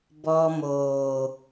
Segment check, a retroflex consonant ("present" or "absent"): absent